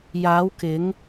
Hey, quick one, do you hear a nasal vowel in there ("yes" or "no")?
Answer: no